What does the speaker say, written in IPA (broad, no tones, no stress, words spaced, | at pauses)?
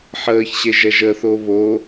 ħəːçɕeʒ ɛʒəθo βo